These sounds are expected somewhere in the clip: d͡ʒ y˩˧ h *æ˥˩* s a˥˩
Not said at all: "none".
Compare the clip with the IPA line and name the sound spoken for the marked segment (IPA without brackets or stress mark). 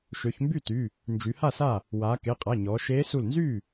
a˥˩